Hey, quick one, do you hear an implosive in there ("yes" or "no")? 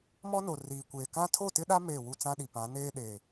yes